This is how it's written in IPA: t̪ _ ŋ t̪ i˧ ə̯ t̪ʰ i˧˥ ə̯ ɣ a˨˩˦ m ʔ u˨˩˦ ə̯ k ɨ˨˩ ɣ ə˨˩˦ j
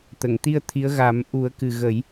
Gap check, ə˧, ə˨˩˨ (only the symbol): ə˨˩˨